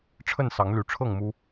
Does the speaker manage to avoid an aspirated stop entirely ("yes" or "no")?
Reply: no